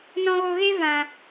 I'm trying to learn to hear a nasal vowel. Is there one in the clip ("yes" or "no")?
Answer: yes